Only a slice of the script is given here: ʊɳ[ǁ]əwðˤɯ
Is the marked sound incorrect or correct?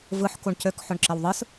correct